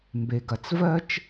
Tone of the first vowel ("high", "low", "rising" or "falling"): low